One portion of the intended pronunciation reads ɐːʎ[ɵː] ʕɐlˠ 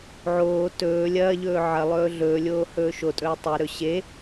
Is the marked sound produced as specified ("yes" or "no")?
yes